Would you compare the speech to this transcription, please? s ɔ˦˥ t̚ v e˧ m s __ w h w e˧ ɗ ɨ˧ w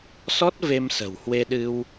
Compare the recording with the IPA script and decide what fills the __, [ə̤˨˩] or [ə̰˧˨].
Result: ə̤˨˩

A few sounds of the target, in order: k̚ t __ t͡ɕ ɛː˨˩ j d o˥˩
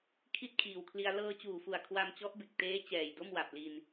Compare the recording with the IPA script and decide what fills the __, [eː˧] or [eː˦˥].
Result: eː˦˥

